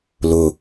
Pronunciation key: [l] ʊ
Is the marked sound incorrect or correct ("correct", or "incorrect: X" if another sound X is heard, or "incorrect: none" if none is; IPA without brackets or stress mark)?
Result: correct